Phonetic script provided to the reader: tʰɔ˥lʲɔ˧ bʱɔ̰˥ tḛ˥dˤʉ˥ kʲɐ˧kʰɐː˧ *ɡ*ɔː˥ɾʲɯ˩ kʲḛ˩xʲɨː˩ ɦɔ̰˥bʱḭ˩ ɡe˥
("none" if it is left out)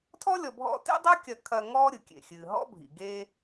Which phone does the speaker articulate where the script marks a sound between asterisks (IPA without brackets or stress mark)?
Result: ŋ